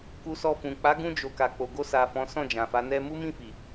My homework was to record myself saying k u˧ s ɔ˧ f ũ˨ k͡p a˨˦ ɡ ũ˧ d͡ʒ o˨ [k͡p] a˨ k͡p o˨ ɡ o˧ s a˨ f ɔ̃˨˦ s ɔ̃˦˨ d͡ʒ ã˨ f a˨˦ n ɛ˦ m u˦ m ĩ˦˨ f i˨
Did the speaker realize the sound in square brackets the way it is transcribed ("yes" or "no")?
no